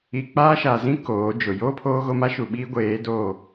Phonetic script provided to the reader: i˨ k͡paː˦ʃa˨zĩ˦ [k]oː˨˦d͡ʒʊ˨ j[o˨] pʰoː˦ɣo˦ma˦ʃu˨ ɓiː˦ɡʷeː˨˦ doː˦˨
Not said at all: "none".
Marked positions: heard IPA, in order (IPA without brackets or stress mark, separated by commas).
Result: k, o˦